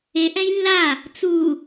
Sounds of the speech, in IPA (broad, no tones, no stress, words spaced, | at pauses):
e ʔɛ̃jlːa | t͡su